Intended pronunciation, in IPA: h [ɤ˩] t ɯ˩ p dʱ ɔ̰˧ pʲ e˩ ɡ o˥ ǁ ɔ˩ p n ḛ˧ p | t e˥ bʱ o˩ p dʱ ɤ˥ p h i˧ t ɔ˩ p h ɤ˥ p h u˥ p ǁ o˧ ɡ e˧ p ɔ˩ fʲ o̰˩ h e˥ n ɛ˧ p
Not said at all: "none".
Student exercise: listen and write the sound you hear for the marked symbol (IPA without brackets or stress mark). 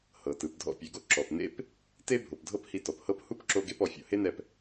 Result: ɤ˩